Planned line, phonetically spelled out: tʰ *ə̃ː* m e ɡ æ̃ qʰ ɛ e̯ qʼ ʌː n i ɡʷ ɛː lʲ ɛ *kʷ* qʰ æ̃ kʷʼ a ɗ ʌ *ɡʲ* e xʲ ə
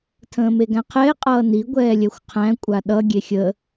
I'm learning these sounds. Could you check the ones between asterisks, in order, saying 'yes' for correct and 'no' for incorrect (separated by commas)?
yes, no, yes